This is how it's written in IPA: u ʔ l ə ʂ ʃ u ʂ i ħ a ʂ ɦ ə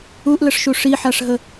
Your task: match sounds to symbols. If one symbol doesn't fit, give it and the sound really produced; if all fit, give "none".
none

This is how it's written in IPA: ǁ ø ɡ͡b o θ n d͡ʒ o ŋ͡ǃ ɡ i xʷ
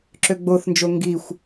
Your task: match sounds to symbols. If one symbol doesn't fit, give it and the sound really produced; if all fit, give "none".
ŋ͡ǃ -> ŋ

